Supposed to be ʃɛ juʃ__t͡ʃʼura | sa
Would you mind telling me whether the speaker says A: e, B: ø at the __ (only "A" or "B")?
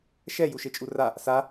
A